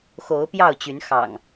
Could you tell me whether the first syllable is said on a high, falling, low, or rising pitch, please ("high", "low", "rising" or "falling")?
rising